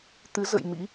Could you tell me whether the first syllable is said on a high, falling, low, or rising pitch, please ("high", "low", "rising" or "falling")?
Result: rising